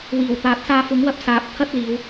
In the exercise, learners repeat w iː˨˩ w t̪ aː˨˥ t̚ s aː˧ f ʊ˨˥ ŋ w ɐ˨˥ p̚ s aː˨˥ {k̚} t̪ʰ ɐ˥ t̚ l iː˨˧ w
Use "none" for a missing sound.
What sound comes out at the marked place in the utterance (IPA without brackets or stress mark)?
p̚